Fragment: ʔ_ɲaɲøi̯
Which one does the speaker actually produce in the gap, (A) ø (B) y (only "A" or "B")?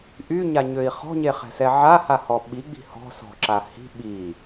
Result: B